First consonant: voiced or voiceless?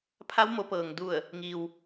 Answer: voiceless